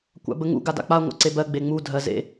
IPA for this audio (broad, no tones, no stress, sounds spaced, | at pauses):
kʷ a̰ b ə ŋ ṵ ɡ a d a̰ k͡p a ŋʷ a̰ ǀ e b ɜ ɡ͡b e ŋ͡m u dʱ ɜ z ḛ